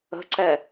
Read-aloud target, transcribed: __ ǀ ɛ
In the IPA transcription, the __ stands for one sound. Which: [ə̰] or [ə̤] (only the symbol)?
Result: ə̤